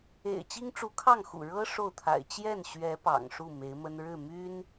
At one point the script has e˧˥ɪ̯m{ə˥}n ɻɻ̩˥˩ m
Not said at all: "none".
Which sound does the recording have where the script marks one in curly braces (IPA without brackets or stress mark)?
ə˥